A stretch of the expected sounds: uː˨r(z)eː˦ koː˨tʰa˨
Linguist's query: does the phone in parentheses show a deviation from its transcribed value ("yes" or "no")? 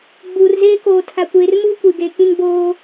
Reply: no